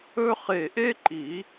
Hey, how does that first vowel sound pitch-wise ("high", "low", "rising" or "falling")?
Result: high